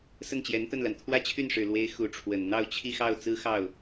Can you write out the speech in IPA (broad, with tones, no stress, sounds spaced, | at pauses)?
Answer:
s ə˥˩ n t͡ɕ j ɛ˧˥ n t̪ ə˥˩ n l a˩ n t̪ʰ w ä˥˧ t͡ɕʰ y˥˩ n ʂ ɻ̩˨˩ l w e˧˥ ɪ̯ x u˧˥ ʈ͡ʂʰ w ə˨˩ n n̪ ɑ˥˧ ʊ̯ t͡ɕʰ i˥˧ x ɑ˥˩ ʊ̯ t͡s ɹ̩˥ x ɑ˥˩ ʊ̯